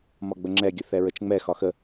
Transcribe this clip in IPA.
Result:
m ɒ ɡ͡b ə ŋ͡ǁ ɛ ɡʲ ə θ ɛ ɹ ə t͡ʃ ŋ͡m ɛ x ɒ x ə

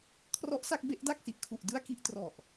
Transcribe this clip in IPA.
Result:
kʰ r ɔ˦˥ ʔ s a˥˩ k̚ b e˦˥ ʔ d a˥˩ k̚ s i˨˩ ʔ kʰ u˨˩ ʔ d ɯ˥˩ a̯ k i˥˩ ʔ t r ɔ˨˩ ʔ

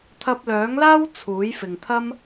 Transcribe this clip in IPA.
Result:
t̪ʰ ɐ˧ p̚ l œː˨˥ ŋ l aː˥ w t͡sʰ uː˨˥ j f ɪ˨ ŋ t̪ʰ ɐ˥ m

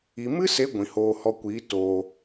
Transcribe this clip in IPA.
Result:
i˨ m ɨ˦ s e˨˦ ɡʷ ĩ˨ h oː˧ h ɔ˧ kʷ iː˨˦ t oː˨

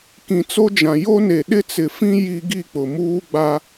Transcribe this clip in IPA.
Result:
k ĩ˨ t͡s o˦ d͡ʒ ã˨ j o˦ n e˨ ɗ ɪ˦ t͡s ɪ˨ f ĩ˦ j i˦ ɡ i˦˨ k͡p ʊ˨ m uː˦ ɡ͡b a˦

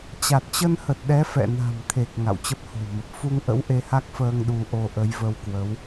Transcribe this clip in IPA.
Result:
t͡ɕ a˨˩ t̚ t͡ɕ ə˧ n h ə˨˩ t̚ ɗ ɛ˨˦ f ɛ̰˧˨ n a̤˨˩ m t̪ʰ e˨˩ k̚ ŋ a̰˧˨ w t͡ɕ ə˦˥ p̚ h o̤˨˩ w m ə˨˩ p̚ f u˧ ŋ ʔ ə̰˧˥ w ʔ e˧ h a˦˥ k̚ f əː˧ ŋ ɗ u˧ ʔ o˧ ʔ ə˨˦ j v ə˧ w k w ə˨˦ w

